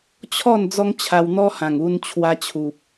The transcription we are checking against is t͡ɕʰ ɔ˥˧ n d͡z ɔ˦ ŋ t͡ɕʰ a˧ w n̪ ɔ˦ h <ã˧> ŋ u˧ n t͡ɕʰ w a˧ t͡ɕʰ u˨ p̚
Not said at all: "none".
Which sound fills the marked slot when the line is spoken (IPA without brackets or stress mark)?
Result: ã˨˩